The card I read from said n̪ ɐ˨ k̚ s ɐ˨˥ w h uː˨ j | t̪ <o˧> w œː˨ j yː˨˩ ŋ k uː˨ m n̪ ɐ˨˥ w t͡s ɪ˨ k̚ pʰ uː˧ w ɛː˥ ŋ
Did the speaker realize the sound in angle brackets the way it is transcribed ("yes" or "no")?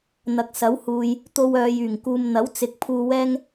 yes